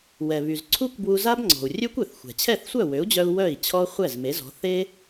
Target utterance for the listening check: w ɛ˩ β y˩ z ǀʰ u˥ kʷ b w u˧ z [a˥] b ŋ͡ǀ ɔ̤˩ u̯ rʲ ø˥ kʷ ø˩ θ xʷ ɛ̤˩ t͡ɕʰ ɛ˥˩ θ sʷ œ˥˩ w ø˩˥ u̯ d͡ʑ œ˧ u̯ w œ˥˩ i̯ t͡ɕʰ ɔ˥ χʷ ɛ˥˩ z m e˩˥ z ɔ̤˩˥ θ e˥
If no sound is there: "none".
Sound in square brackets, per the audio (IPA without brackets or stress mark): a˥